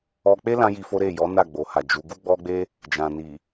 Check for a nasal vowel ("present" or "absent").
present